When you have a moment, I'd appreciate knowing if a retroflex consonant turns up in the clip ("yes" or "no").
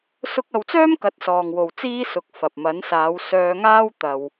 no